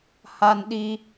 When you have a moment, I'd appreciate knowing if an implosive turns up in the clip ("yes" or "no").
yes